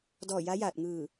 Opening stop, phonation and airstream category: plain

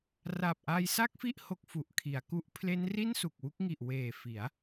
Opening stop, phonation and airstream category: plain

